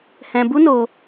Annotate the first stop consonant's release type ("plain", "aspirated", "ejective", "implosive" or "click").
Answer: plain